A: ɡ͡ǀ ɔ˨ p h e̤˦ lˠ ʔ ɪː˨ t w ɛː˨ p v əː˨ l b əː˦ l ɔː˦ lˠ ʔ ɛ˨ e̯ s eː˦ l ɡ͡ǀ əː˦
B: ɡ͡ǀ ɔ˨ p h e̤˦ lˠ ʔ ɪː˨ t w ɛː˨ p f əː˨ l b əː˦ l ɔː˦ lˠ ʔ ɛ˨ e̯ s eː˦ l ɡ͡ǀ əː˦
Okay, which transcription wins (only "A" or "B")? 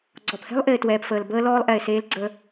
B